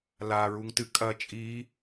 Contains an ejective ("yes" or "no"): yes